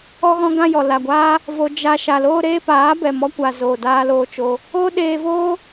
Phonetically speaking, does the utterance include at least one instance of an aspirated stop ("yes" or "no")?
no